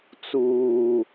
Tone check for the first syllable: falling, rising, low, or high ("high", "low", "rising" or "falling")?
low